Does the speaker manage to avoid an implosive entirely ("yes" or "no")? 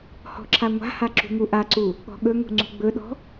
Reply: no